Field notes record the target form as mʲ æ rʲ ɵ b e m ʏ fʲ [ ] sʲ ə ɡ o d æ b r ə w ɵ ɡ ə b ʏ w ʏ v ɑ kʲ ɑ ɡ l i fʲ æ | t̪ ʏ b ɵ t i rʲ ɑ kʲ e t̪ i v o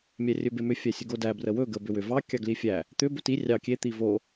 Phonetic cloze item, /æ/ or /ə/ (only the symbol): æ